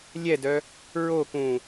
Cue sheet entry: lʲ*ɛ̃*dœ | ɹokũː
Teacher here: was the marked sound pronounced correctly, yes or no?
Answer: no